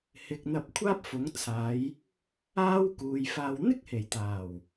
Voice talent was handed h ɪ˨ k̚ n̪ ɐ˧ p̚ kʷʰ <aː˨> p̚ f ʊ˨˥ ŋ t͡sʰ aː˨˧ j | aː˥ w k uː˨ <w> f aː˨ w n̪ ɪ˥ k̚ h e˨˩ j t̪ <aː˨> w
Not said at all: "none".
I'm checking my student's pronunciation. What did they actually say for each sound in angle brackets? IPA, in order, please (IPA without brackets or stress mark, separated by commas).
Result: aː˥, j, aː˨˩